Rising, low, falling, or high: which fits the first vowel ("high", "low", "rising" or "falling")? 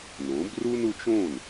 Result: rising